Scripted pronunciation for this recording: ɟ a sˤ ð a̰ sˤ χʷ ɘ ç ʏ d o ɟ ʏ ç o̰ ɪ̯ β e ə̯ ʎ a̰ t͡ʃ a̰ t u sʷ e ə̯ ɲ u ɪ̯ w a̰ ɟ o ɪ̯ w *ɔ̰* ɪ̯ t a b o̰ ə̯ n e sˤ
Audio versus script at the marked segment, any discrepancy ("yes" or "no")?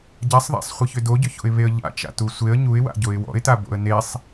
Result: no